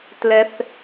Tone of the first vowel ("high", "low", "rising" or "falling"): low